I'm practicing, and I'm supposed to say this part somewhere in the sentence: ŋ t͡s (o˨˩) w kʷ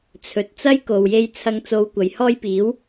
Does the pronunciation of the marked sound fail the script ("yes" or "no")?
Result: yes